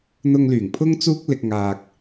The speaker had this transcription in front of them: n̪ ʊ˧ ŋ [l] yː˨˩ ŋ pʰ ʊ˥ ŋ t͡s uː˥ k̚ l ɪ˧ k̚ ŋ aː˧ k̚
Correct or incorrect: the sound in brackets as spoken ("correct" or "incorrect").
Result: correct